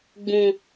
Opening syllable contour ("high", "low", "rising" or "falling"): low